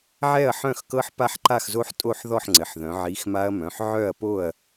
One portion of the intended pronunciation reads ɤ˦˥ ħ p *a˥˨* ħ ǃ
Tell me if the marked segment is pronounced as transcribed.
yes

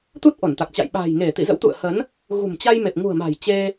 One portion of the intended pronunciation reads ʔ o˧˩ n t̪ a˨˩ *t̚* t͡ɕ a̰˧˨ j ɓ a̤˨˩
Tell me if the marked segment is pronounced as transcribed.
no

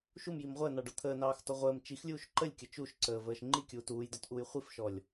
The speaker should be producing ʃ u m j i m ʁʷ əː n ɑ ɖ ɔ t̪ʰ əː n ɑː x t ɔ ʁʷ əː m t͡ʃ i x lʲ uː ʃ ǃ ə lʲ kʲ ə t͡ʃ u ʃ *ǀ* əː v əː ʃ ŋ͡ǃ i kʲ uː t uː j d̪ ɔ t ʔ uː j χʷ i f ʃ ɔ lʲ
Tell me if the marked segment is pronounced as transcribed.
yes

